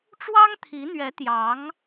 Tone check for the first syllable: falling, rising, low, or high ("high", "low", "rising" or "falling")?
high